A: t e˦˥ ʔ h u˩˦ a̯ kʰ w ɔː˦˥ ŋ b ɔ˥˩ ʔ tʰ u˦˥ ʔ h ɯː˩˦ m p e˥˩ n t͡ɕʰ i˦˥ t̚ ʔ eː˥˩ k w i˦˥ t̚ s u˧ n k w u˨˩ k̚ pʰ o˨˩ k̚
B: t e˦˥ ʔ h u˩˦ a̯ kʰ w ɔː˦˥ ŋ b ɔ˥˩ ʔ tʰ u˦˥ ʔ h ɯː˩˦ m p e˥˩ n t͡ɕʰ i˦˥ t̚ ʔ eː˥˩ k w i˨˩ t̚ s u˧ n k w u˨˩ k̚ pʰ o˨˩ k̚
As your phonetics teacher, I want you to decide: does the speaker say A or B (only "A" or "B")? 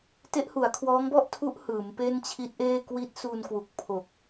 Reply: A